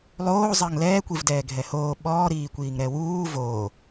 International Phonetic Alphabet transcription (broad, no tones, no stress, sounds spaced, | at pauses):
lˠ oː zˤ ɐː ŋ l ɛː kʷ i v d ɛː ɡʱ ɛ h oː ɓ ɔː ɾ iː kʷ iː ŋ ɾ ɛ w uː v oː